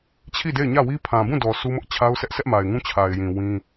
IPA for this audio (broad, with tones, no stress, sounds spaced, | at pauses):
t͡ɕʰ i˦˨ d e˦˨ ɪ̯ ɲ ä˦˨ w i˦ pʰ ã˨ b ũ˦˨ d ɔ˨ s u˦ m ʊ˦ ʔ t͡ɕʰ a˦ ʊ̯ s ɛ˦ ʔ sʰ ɛ˦ ʔ m a˨ ɪ̯ ŋ ũ˦ t͡ɕʰ a˨ ɪ̯ j ĩ˨ w ĩ˦